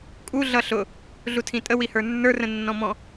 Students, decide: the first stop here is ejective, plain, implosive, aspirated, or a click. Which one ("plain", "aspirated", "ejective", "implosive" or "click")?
ejective